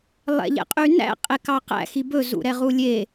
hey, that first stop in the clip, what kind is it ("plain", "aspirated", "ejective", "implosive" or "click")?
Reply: ejective